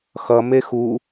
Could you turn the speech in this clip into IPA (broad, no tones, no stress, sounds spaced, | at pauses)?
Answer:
x ʌ m e x u